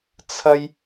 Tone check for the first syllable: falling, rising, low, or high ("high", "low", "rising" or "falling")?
high